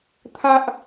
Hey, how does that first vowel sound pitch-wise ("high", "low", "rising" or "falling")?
high